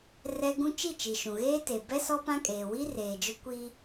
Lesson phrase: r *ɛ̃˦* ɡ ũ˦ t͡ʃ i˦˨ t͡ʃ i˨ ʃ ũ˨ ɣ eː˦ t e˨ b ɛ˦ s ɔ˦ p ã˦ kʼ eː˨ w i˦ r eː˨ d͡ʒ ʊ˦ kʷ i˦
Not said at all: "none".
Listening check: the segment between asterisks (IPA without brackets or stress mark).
ɛ˦